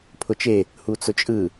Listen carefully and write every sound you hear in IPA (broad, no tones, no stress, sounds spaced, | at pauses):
pʰ ʊ t͡ʃ e | h u t͡s ʊ t͡ʃʼ ɯ